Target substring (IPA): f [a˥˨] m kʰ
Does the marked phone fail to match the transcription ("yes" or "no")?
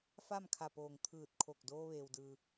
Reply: no